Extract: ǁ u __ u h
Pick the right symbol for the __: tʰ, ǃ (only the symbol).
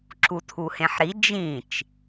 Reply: tʰ